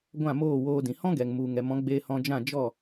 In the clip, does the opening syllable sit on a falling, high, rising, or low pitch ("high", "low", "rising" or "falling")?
falling